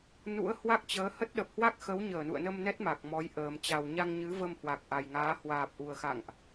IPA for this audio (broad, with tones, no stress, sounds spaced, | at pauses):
n ṵ˧˥ ə̯ h w a˦˥ k̚ t͡ɕ əː˨˦ h ə˦˥ t̚ ɗ ə˨˩ p̚ h w a˦˥ k̚ x ə˨˦ w ɲ əː˧˩ n ṵ˧˨ ə̯ n ə˧ m n ɛ˦˥ t̚ m a˨˩ k̚ m ɔ˨˦ j ʔ əː˨˩ m t͡ɕ a˨˩ w ɲ a˧ ŋ ɲ ɨ˨˦ v ə˧ m h w a˨˩ k̚ ʔ a˨˩ j ŋ aː˨˦ h w aː˨˩ p̚ ʔ u˨˩ ə̯ x a̰˧˨ ŋ ʔ